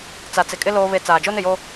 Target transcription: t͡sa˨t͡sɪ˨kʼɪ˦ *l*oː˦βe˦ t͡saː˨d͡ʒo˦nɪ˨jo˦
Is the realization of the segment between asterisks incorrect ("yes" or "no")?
no